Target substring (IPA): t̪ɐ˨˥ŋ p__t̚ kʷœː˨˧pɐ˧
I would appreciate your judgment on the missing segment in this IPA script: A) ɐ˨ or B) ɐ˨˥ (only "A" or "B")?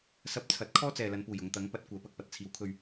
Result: B